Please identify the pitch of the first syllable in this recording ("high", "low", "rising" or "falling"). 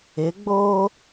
rising